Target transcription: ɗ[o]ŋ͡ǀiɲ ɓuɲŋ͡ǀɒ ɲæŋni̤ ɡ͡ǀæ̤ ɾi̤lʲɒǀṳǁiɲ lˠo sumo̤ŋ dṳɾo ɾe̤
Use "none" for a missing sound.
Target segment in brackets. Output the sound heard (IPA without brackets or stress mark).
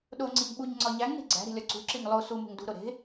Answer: o